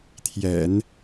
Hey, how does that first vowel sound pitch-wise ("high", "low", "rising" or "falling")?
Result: low